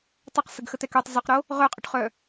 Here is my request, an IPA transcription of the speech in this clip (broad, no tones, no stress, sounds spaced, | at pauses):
tˤ œ q s ə ɡ x ə t̪ ɛ k ø tˤ z œ q ɾ o | ʁ œ qʼ ø ʈ χ œ